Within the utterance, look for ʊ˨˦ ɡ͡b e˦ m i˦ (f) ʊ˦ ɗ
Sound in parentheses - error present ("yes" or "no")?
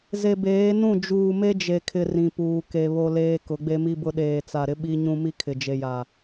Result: yes